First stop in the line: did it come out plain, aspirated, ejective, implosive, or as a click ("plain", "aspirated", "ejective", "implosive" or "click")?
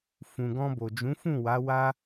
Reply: plain